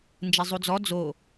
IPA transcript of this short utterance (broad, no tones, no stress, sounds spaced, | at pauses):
n d͡ʒ e zˤ u d͡z ɔ d͡z o